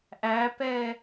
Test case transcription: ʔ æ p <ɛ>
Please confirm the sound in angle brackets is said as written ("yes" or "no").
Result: yes